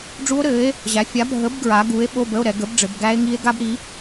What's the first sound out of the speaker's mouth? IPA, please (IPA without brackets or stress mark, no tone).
ɖ͡ʐ